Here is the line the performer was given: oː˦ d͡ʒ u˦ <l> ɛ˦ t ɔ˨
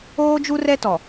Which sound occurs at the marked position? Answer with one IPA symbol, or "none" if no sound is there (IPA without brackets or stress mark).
r